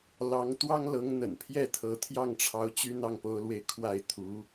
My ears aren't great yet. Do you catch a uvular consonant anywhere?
no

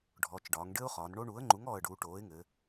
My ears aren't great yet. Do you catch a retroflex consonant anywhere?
yes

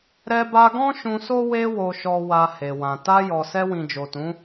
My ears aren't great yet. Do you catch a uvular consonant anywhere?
no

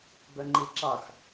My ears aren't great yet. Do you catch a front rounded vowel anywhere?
yes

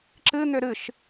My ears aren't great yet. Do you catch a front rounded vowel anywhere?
yes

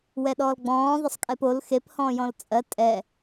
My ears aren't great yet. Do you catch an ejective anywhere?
yes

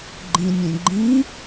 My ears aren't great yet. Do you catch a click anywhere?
yes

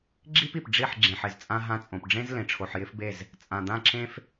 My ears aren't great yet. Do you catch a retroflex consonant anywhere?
yes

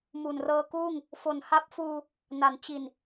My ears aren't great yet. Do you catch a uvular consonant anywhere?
no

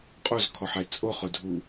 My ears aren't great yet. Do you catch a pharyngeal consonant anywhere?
yes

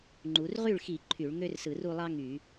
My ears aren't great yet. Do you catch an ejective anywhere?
no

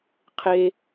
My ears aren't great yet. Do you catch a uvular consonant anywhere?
yes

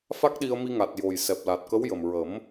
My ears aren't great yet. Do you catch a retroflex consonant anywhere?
no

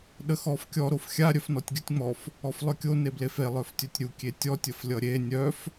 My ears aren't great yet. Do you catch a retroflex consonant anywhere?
no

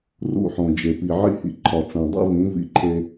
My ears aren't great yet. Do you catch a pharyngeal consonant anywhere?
yes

